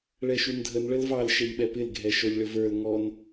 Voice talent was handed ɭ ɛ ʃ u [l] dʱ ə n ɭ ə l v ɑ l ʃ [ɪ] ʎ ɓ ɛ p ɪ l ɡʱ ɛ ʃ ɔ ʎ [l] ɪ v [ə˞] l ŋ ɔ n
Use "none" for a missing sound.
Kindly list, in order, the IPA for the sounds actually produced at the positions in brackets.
n, ɛ, ɭ, ə˞

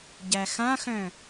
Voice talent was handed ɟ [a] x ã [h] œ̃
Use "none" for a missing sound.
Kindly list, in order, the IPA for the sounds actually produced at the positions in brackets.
æ, x

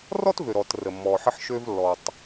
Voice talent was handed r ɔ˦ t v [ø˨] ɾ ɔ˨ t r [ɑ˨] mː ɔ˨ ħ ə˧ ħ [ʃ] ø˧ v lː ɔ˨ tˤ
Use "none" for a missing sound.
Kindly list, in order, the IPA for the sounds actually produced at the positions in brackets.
ø˨, ə˨, ʃ

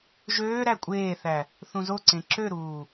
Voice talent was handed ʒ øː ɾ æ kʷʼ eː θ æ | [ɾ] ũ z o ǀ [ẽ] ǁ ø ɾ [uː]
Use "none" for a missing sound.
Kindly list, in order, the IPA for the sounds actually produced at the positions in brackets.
θ, ẽ, uː

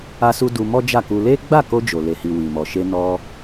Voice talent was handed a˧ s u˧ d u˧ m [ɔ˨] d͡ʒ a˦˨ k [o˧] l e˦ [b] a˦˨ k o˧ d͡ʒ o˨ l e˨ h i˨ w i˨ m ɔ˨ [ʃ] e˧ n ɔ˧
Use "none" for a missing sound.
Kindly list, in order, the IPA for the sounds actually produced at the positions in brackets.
ɔ˦, u˧, ɡ͡b, ʃ

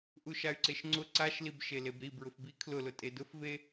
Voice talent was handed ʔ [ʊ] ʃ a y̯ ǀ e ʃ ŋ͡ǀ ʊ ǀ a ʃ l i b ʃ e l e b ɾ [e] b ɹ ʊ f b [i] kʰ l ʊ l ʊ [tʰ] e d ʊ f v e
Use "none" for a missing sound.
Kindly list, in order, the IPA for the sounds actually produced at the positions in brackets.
u, i, i, tʼ

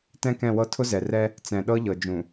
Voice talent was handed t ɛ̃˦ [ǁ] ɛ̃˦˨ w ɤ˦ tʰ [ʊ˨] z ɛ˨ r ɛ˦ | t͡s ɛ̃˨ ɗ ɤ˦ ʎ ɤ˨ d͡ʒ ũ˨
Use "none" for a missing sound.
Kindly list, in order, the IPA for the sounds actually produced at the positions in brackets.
k, ʊ˦

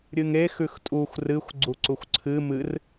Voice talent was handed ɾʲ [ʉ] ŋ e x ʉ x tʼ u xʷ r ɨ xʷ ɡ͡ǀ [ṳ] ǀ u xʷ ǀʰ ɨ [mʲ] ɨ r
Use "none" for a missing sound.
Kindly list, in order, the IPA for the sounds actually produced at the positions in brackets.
ɨ, u, m

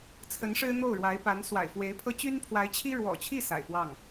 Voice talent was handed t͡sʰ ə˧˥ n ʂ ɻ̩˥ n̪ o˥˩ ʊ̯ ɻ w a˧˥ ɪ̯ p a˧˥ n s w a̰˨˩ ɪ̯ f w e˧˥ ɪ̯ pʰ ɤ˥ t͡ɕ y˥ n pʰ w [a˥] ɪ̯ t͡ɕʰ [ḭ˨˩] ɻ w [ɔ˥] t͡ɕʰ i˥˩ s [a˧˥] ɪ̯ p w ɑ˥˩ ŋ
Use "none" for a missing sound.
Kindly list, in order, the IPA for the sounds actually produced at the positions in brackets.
a˧˥, i˥, ɔ̰˨˩, a̰˨˩

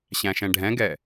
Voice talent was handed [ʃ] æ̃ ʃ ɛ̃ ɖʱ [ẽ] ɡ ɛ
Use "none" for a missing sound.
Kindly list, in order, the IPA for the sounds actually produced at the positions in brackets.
ɕ, ɛ̃

